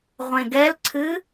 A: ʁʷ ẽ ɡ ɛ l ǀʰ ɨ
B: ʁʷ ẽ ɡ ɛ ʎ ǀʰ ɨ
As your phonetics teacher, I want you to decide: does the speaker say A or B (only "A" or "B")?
A